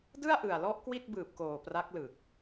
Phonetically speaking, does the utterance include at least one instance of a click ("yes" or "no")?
no